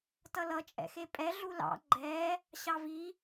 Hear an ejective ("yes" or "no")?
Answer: yes